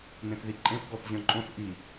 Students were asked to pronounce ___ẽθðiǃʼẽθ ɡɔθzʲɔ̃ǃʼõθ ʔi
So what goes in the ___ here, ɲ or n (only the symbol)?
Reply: n